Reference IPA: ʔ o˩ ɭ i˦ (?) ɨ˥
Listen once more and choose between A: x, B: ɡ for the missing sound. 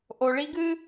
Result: B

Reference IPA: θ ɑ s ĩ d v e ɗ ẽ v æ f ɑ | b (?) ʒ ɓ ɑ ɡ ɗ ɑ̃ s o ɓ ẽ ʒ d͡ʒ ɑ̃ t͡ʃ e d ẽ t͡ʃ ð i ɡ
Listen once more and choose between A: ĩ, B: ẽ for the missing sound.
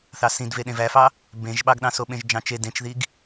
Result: B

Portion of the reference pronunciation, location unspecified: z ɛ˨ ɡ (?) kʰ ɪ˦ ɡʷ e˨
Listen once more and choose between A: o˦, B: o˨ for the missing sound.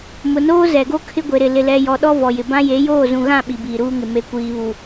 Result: A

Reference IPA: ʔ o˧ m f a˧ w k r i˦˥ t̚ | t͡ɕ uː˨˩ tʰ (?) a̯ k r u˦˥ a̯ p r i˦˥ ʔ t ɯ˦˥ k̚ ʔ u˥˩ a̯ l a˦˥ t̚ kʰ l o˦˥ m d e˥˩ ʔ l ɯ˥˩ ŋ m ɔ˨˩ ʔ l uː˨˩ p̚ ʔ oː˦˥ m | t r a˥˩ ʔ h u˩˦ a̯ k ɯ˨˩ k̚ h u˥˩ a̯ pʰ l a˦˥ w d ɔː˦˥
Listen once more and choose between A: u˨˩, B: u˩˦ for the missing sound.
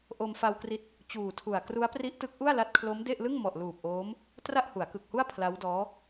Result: A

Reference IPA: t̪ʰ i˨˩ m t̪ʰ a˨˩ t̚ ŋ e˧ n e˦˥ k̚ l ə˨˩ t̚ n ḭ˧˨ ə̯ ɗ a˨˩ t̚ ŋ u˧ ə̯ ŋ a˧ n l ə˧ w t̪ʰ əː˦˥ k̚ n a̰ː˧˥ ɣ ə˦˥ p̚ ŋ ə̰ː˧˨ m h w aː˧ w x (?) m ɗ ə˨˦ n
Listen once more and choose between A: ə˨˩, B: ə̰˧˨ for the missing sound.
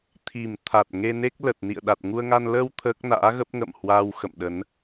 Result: B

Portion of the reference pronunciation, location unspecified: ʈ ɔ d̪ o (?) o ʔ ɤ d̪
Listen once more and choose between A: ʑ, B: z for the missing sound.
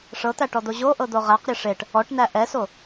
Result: A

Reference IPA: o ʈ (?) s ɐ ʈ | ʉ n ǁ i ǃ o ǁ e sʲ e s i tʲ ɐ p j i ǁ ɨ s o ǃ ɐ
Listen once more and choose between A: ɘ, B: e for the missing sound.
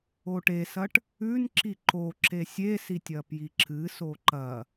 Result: B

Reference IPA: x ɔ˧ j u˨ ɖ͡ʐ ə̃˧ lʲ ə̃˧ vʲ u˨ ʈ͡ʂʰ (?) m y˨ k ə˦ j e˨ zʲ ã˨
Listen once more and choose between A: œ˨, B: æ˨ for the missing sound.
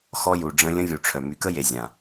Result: A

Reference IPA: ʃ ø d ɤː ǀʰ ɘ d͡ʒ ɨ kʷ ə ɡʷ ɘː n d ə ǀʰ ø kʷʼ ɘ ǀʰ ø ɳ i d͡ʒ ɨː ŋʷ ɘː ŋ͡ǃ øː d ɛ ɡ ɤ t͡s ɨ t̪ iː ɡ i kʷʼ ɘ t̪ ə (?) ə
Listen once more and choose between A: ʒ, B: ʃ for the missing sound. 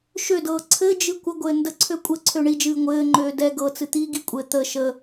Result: B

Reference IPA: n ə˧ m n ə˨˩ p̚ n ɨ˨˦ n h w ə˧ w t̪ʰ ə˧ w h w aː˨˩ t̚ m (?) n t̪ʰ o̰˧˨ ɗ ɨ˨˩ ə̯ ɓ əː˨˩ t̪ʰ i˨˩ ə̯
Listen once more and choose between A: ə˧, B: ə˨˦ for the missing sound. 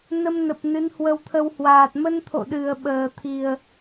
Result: A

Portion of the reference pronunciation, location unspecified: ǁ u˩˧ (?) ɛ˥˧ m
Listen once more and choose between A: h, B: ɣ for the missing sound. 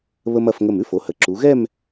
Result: B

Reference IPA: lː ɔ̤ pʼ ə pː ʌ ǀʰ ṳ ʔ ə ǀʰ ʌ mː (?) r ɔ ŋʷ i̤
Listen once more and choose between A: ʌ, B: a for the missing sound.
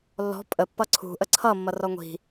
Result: A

